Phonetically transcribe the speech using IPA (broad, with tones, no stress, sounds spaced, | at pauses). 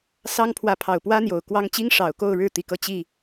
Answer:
s ɑ˥ ŋ pʰ w ä˧˥ pʰ ɑ˨˩ ʊ̯ p w ä˥ n̪ j o˨˩ ʊ̯ k w ɑ˥ ŋ t͡ɕ i˥ ŋ ʂ ɑ˨˩ ʊ̯ k o˥˧ ʊ̯ ɻ ɻ̩˥˩ t̪ i˥ k ɤ˥˧ t͡ɕ i˥˩